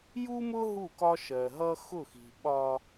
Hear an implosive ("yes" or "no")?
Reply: yes